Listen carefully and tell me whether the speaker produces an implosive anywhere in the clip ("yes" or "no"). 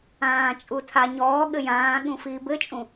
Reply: yes